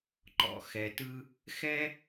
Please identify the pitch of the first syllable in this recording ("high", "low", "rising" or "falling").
high